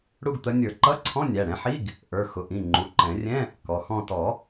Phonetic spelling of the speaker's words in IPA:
ɽ u˥˧ ɡ t̪ ə˨˥ nʲ ə˞˨˩˦ ǃ ʌ˧˥˧ ǀʰ ɔ̃˧˥˧ nʲ æ˩˧˩ ɽ ɛ̃˨˥ ħ i˧˥˧ ɡ | ʔ ə˞˩˧˩ x ʊ˩˧˩ ʔ ĩ˩˧˩ ŋ͡ǃ u˩˧˩ ǃ ɛ̃˨˩˦ rʲ ɛ̃˧˥˧ | k ɔ˩˧˩ x ɔ̃˥˧ t ɔ˨˩˦

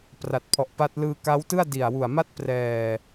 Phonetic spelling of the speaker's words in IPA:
p r a˨˩ t̚ pʰ ɔ˨˩ ʔ p a˦˥ t̚ l ɯː˧ k a˦˥ w t ɯ˥˩ a̯ d i˨˩ a̯ w u˨˩ a̯ m a˥˩ t̚ p r ɛː˨˩

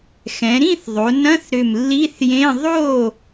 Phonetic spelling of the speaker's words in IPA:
x ɛ̃˩˧ ɾ ĩ˥˨ θ ðˤ o˩˧ n ɐ̃˧˥˧ θ ɾ ʏ˧˩ m lː i˧˥˧ θ j ẽ˧˥˧ ðˤ o˥˨

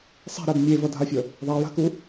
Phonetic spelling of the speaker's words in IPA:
sˤ ɛ̤ ɾ ɛ b mʲ e v ʌ dʱ a fʲ ʌ | ðˤ a j a̤ k u

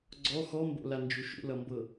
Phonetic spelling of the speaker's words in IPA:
ɡ͡ǀ ɔ x ɔ m b o̰ l a n d͡ʒ u ʃ ṵ l ʌ m b ɤ

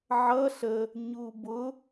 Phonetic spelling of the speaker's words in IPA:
ʕ ʌ ɬ ə | ɲ u b ʊ

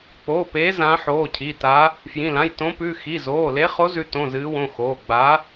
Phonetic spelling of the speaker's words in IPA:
k͡p oː˩˧˩ p eː˨˦ z ã˨˦ ħ oː˩˧˩ cʰ i˩˧˩ t a˨˦ | f j ĩ˩˧˩ l ã˩˧˩ j t õ˨˦ p ʉ˩˧˩ x i˩˧˩ z oː˩˧˩ l e˨˦ χ o˨˦ z ʉ˨˦ t õ˩˧˩ z ɨː˨˦ w õ˩˧˩ x oː˩˧˩ ɡ͡b a˨˦

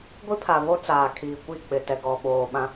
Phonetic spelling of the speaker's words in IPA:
ɡʷ i˦ pʰ a˨ β o˦ t͡s aː˨ kʰ iː˨ kʷ i˦˨ k͡p ɪ˨ t ɛ˨ ɡ ɔ˨ ɓ oː˨ ɓ ã˦

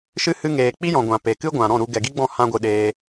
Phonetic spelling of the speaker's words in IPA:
ʃ ɨ˧ h ɨ˧ ŋ eː˨ k͡p i˦ j ɔ̃˨ ɡʷ ã˨ p e˨ k ɨ˦ ɡʷ ã˨ ɾ ɔ̃˦˨ ɾ u˧ ɡ ɛ˨ ɡ i˦ ɡ͡b ɔ̃˦˨ h ã˧ ɡʷ ɨ˨ ɗ eː˧

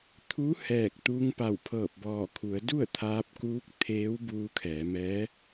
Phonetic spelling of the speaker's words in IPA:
t̪ʰ u˧˥ h ɛː˧˩ k̚ t̪ uː˧ ŋ p a˧˩ w pʰ ɤː˧˩ p̚ b ɔː˧˩ kʰ u˩˧ ə̯ d u˥˨ ə̯ t̪ʰ aː˧ p̚ k uː˧˥ k̚ t̪ʰ eː˧˥ w b uː˧ kʰ ɛː˩˧ m ɛː˧˥

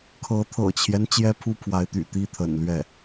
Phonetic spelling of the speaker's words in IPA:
kʰ ɤ˧˥ t̪ʰ ɤ̰˨˩ t͡ɕʰ j ɛ˦ n t͡ɕ j ɛ˥ pʰ u˥ pʰ w a˧˥ ɪ̯ t̪ y̰˨˩ t̪ i˥ t̪ʰ ə̰˨˩ n l ɥ ɛ˥˩

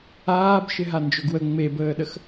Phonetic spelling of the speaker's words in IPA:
aː b ʃ ɪ ɦ a n d͡ʒ ɵ ɡ w ə ŋ͡m e b əː ɗ ə x

